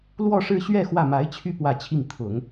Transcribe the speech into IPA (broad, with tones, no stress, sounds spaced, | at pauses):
l w ɔ˥˧ ʂ ɻ̩˥˧ ɕ ɥ ɛ˥˧ x w ä˥˩ m a˧˥ ɪ̯ t͡ɕʰ y˥˧ p w ä˥˧ t͡ɕʰ i˥˩ ŋ t̪ʰ ʊ˨˩˦ ŋ